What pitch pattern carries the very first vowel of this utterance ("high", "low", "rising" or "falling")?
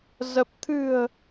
low